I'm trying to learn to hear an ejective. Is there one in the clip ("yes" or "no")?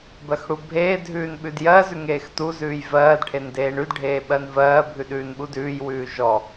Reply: no